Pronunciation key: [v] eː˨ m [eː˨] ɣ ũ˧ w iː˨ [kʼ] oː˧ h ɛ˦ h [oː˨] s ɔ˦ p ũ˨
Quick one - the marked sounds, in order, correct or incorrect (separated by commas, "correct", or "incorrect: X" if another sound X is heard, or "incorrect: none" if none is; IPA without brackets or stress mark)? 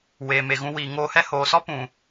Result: incorrect: w, incorrect: e˨, incorrect: ŋ, correct